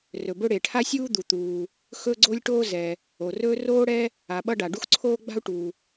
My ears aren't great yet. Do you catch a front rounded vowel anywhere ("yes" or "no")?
no